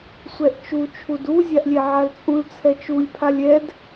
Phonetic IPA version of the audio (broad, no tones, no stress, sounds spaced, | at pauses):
sʷ ɛ ʔ t͡ʃ u t͡ʃʰ u d u zʲ a ʔ lʲ ɛ ʕ a l t͡sʼ ũ l t͡sʰ ɛ t͡ʃ u lʲ pʰ a lʲ ɛ d